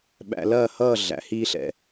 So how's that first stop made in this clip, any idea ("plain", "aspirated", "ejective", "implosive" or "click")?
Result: implosive